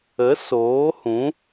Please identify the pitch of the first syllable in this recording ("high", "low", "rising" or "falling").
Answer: rising